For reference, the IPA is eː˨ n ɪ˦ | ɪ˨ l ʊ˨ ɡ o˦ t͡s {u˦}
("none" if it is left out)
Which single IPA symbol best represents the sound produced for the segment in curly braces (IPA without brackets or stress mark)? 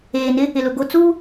uː˦